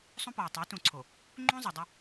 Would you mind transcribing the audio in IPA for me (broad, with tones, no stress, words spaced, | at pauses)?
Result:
sˤũ˦pɔ˨w tˤo˨˦tũ˨ǀʰo˨ | ŋ͡ǃũ˦ zˤu˨ dˤʏ˦